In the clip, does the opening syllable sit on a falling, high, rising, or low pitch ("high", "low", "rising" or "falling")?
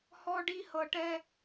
high